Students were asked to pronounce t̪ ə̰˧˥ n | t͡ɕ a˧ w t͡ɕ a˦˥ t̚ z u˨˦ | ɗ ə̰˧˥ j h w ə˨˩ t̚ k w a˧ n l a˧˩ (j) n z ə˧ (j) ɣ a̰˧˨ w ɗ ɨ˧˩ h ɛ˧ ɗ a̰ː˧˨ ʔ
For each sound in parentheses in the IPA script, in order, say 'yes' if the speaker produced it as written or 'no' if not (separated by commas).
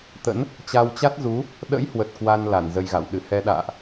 no, yes